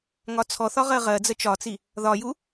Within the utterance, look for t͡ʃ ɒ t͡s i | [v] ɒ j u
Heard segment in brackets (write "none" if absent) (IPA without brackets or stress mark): ð